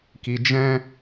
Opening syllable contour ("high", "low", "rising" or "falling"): low